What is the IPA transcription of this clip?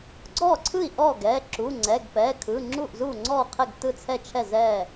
ɡ͡ǀɔ˥˩ǀʰɯ˥˩i̯ʔɔ˥˩ɡɛ˩˧˩ ǁu˩˧˩ŋ͡ǀɛ˩˧˩ɡpɛ˩˧˩kʰɯ˩˧˩ ŋ͡ǁu˥˩ʔzu˥˩ŋ͡ǀɔ˥˩qʰɛ˥˩ɡ tɯ˥˩t͡sʰɛ˥˩t͡ʃʰɛ˥˩ zɛ˥˩

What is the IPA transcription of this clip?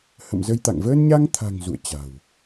hə̰˧˨mzə˧jt̪a̰˧˨ŋ vəː˧nɲa˧ŋt̪ʰa̤˨˩ŋ zṵ˧˨ə̯ t͡ɕa̤˨˩w

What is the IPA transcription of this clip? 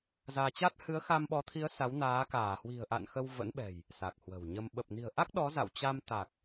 zaː˧t͡ɕa˦˥t̚ hɨ˨˦ə̯xa˧mɓɔ˨˦t̪ʰi˨˦ə̯ sa˨˦wnaː˨˦ kaː˧˩hwi̤˨˩ə̯ʔa̰˧˨n xə˧wvə̰˧˥nɓɛ̤˨˩j | sa˨˩k̚hwə̤˨˩wɲə˧m ɓə˨˩p̚ni̤˨˩ə̯ʔa˦˥k̚ ɗɔ˨˦za̰˧˨wt͡ɕa˧m t̪a˨˩k̚

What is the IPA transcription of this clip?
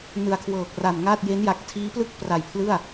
nɯ˨˩a̯kʰwɤː˨˩k̚ra˨˩nŋa˥˩t̚ je˦˥nja˨˩k̚ tʰiː˦˥plɯ˥˩k̚pra˨˩jpʰlɯ˥˩a̯

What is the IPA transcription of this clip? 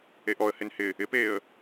eʔɔə̯hɪn hɪ | ɪpeːə̯

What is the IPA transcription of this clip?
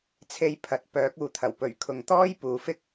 t͡sʰe˧jpʰɐ˨˥t̚pœː˨˥k̚uː˨ t̪ʰɐ˨˩wpɵ˨˩ɥkʰʊ˨ŋ t̪ɔː˥j puː˨fɪ˥k̚

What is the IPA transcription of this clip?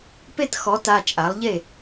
pe˥˩txɔ˩˥ta˩˧˩ t͡ʃʼa˩˥lˠʎe˥˩

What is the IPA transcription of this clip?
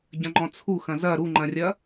ɟɐ̃ŋ͡ǃɔ̃t͡sʰu xɐ̃zɐ ɾuŋ͡ǃɐ̃rʲɐ

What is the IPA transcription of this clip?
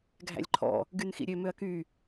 ɡʱæ̰lʲǃʰɔ̰ | ɡynxḭɾʲø møɐ̯ky

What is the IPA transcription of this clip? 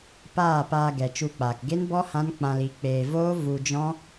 paː˦˨paː˧ɡɛ˨ t͡ʃu˧k͡paː˨k ɡe˦nbɔ˦ hã˦nk͡pã˧li˨˦ k͡peː˨voː˦ vu˧d͡ʒɔ̃˦

